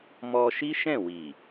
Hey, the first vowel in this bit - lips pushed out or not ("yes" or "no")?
yes